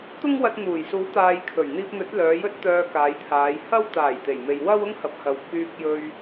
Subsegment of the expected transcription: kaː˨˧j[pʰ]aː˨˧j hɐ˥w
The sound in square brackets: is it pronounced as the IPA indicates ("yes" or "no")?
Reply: no